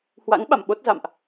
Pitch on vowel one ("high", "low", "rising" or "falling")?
rising